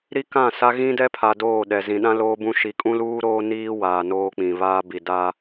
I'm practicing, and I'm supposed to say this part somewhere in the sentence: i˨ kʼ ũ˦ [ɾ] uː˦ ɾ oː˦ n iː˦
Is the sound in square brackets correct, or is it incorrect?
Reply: incorrect